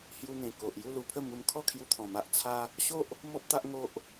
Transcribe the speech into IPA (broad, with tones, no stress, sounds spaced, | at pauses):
h j u˧ n̪ ẽ˨˩ k o˨ ʔ j u˥˧ l u˧ pʰ ə˥˧ m u˧ m kʰ ɔ˥˧ kʰ j u˧ t̪ʰ ɔ̃˨˩ m a˦ ʔ t͡sʰ a˦ | ɕ o˦ ʔ | m ɔ˦ p̚ t̪ a˦ ʔ ŋ o˦ ʔ